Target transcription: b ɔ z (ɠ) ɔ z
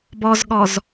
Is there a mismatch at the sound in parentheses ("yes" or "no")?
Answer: no